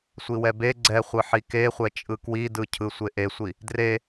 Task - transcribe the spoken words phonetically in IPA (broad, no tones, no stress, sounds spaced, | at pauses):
sʷ i w ɛ b e ɡ͡ǀ ɛ χʷ ɯ ħ i k e χʷ ɛ t͡ʃʼ ɯ k w i d ɯ cʰ ɯ sʷ e ʔ e sʷ i | d r e